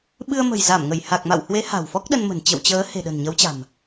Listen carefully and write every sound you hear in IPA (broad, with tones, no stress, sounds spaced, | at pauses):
ɓ ɨ˧ ə̯ m ə̤˨˩ j z a˧˩ m ŋ ə˧˩ j h a˨˩ k̚ m a̰˧˨ w h w e˨˦ h a̤˨˩ w f ɔ˦˥ k̚ ɗ ə˧ n m ə̤˨˩ n t͡ɕ ə̰˧˨ w t͡ɕ əː˨˦ h e̤˨˩ ɗ ə̤˨˩ n ɲ ə˨˦ w t͡ɕ a̤˨˩ m